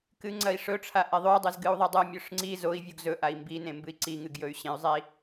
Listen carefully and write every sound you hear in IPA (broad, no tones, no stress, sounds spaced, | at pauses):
k ɨ ŋ͡ǀ ɐ i̯ ʂ ɵ ʈ͡ʂʰ a ʔ e ðˤ ʉ dˤ ɨ z ɡ ɨ u̯ ðˤ i dˤ ɨ mʲ ɵ ʂ ŋ͡ǀ i z o i̯ vʲ u ɡ z ɵ ʔ a i̯ m b i n ẽ m b ɨ i̯ ǀ i ŋ ɨ ɡ j ɵ y̯ ɕ ẽ y̯ zˤ i